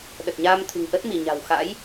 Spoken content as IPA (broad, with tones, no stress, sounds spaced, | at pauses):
ɗ ə˨˩ t̚ ɲ aː˧ m t̪ʰ ɨ̤˨˩ ŋ ʔ ə˦˥ t̚ m i˧˩ ɲ a̤˨˩ w x a̰˧˥ j